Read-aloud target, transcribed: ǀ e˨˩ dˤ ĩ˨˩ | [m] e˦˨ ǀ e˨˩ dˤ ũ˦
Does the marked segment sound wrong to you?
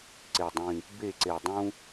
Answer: yes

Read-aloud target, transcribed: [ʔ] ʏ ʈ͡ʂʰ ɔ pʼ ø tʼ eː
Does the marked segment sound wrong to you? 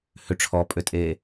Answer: yes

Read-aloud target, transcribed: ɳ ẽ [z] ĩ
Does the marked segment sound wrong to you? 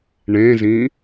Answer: no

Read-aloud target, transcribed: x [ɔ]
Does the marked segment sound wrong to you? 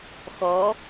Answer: no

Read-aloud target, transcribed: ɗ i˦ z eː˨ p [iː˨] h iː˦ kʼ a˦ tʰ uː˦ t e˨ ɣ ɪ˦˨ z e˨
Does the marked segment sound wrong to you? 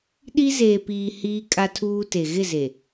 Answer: no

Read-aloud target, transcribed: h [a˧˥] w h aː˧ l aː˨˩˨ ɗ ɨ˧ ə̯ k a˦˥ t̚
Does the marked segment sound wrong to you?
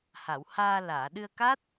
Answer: yes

